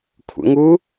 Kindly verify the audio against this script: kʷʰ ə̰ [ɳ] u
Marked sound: incorrect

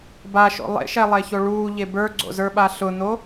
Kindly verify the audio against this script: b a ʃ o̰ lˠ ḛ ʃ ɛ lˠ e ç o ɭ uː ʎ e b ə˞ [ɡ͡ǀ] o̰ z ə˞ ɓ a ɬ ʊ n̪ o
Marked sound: correct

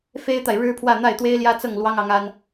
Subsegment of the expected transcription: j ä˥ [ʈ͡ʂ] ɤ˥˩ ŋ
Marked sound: incorrect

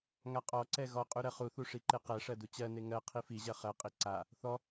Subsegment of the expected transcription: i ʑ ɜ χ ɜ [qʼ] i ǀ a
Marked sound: correct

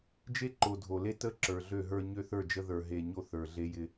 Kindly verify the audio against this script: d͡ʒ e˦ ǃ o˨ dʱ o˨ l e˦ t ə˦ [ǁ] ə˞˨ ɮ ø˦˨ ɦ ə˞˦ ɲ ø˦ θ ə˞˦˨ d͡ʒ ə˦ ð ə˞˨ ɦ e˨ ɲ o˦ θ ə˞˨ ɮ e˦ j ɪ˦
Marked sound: correct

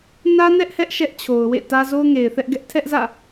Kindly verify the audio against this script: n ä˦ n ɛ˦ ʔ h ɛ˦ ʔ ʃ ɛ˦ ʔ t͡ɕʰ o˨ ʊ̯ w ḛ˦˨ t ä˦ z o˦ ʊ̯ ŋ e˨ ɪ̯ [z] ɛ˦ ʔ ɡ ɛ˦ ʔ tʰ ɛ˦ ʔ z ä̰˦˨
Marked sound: incorrect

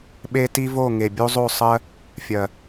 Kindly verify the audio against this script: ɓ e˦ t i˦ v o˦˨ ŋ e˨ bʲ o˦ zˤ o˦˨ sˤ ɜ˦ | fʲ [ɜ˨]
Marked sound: correct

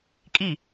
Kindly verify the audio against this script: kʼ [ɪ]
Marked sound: incorrect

